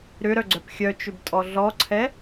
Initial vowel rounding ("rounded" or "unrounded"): rounded